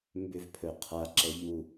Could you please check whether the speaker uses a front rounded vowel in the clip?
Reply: yes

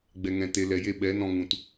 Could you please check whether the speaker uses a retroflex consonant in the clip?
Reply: no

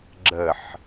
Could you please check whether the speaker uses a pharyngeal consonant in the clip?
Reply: yes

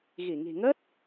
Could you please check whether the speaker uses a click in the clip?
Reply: no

